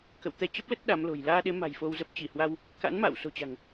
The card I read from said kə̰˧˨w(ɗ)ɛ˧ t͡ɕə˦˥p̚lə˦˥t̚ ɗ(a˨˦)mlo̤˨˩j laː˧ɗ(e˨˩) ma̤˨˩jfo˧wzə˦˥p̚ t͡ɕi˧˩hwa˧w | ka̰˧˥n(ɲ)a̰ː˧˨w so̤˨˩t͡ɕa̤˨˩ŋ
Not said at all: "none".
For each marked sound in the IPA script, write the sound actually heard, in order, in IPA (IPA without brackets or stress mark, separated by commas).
t̪, a˨˦, e˨˦, m